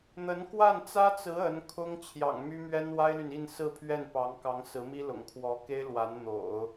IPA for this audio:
n̪ ə˧˥ n k w a˥˩ n t͡s ä˥ t͡s ɹ̩˧˥ ə˧˥ n kʰ ʊ˥ ŋ t͡ɕʰ j ɑ̰˨˩ ŋ m y˥ m ɥ ɛ˥ n w a˥ ɪ̯ l y˨ n i˥˧ n s ɹ̩˥˧ pʰ ɥ ɛ˥˩ n p ɑ˧˥ ŋ k ɑ˧˥ ŋ s ɹ̩˧˥ m i˥ l ʊ̰˨˩ ŋ kʰ w ɔ˧˥ k e˥ ɪ̯ l w a˧˥ n n̪ o̰˨˩˦ ʊ̯

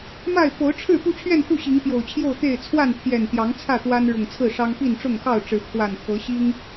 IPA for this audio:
m a˥˨ ɪ̯ p o˨˦ ʊ̯ ʈ͡ʂʰ ɻ̩˥˨ p u˥˨ t͡ɕʰ ɥ ɛ˥˨ n x u˥˨ ɕ i˨˦ ŋ p j o˨˩ ʊ̯ t͡ɕʰ j o˥˨ ʊ̯ t̪ e˥˨ ɪ̯ t͡sʰ w a˥˨ n t̪ʰ j ɛ˨˩ n t̪ j ɑ˨˦ ŋ t͡sʰ ä˥˨ t̪ w a˦ n ɻ ʊ˨˩ ŋ t͡sʰ ɹ̩˥˨ ʂ ɑ˦ ŋ p i˥˨ n ʈ͡ʂ ʊ˥˨ ŋ x ɑ˥˨ ʊ̯ ʈ͡ʂ ɻ̩˨˦ pʰ w a˨˩ n pʰ ɤ˨˦ ɕ i˦ ŋ

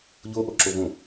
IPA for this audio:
ʎ o ʔ o ǁ o v õ

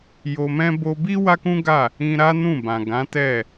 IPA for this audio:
j o˧ m ɛ̃˦ b o˧ b i˦ w a˦ k ũ˦ ɡ a˦˨ | ĩ˧ ɾ a˦ n ũ˦˨ b ã˨ ɡ ã˨˦ t ɛ˦˨

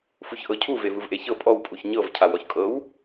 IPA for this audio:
f u ç ʔ ɤ cʰ u v e v ɯ v ʔ e ç ɤ pʼ ɔ w pʼ u ç ɲ ɤ v cʰ a w ɔ ç kʼ ɤ w

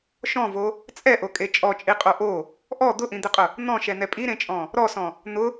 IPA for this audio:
ʃ ɔ̃ v o | t͡sʼ ɛ ʔ o kʼ e t͡ʃʼ ɔ t͡ʃʼ i qʼ o ʔ o | ʔ ɔ d̪ ʊ ʔ ĩ d̪ ɪ qʼ ʊ | n̪ ɔ̃ ʃ ɛ n̪ ɛ pʼ i ɾ ẽ t͡ʃʼ ɔ̃ | ɾ ɔ s ɔ̃ | n̪ ʊ

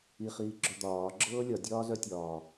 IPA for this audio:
i χ iː ɡ͡ǁ œ d̪ ɒː ɡ͡ǁ ɤː lʲ ɒ dʲ ɒː z œ tʲ ɒː

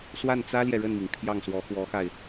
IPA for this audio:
s w a˥˩ n t͡s ä˥ l j ɛ˨ ɻ ə˥˩ n m i˩ ŋ pʰ j ɑ˥˩ ŋ s w ɔ˧˥ x w ɔ˧˥ x a˧ ɪ̯

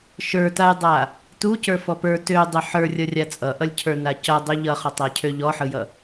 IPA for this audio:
ʃ ə˞ t a j dˤ a | t u c ə˞ f ɔ p ə˞ t ø dˤ ø ħ ə˞ rʲ ʌ rʲ a t͡sʼ ʌ ʔ ʌ lʲ cʰ ə˞ n a c ʌ dˤ ø ʎ ʌ χ ɔ tˤ a cʰ ø ʎ ɔ ħ ɯ j ʌ

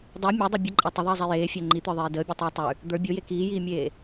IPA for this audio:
dˤ e mʲ e dˤ o bʲ ə ǃʼ a tˤ ʏ ðˤ iː zˤ ɛ j eː fʲ ɛ ŋ͡ǃ i t̪ ə˞ ðˤ eː d əː bʲ o tˤ iː tˤ ʉ | d̪ ə˞ bʲ o j e k iː j iː mʲ eː

